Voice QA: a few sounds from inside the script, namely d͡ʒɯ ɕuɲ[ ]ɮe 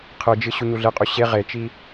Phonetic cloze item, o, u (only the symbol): u